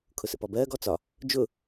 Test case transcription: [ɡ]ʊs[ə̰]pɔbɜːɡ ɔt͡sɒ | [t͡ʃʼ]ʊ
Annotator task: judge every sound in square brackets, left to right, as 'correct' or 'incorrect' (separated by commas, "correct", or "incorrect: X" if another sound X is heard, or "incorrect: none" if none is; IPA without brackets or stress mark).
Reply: incorrect: kʰ, correct, incorrect: d͡ʒ